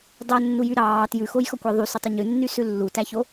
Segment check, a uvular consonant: absent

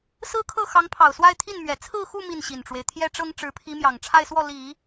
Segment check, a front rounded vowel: absent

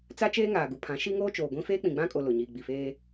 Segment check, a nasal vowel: present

